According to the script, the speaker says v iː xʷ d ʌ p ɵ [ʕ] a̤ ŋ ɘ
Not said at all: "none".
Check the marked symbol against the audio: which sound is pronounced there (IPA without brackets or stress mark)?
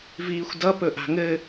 ʔ